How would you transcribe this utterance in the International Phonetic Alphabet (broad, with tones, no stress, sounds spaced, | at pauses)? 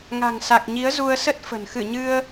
ŋ a̤˨˩ ŋ s a˨˩ k̚ ɲ i˨˦ ə̯ z u˧ ə̯ s ə˦˥ t̚ f ə̤˨˩ n x ɨ˧˩ ɲ ɨ˧ ə̯